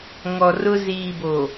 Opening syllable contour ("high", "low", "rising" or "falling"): low